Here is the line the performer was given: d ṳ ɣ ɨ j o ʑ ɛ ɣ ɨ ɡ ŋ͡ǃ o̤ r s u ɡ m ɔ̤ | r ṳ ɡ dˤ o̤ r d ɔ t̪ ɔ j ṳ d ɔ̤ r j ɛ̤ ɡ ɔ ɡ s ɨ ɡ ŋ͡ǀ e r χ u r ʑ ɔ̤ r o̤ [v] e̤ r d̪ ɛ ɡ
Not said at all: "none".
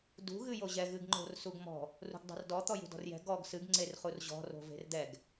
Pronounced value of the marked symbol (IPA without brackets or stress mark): v